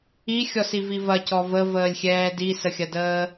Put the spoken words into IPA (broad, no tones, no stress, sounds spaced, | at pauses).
i xʲ ɔ s i v i v ɐ c ɔ v ə v əː lʲ xʲ ɛː d i s ə xʲ ɐ d əː